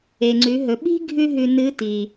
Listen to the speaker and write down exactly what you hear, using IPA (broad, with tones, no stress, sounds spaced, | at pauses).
e˩ ŋ͡ǀ ʉ˩˧ ɦ ɵ˩˧ ɓ i̤˥ ɡʱ ʉ˥ ɦ ʉ˧ n ɨ˧˥ t i˩